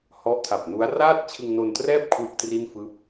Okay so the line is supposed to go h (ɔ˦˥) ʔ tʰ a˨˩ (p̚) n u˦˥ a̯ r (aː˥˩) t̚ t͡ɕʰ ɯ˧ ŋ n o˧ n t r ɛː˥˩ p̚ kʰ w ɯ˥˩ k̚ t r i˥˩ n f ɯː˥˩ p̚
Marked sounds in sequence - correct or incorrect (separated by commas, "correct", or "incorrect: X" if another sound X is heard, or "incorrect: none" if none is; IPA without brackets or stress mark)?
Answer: correct, correct, correct